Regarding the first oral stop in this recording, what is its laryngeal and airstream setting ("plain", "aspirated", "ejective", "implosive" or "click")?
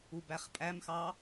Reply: plain